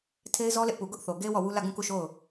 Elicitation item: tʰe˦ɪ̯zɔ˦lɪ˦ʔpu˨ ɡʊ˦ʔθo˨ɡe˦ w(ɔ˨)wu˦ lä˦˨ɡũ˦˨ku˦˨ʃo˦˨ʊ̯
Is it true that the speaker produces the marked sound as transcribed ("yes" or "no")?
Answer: no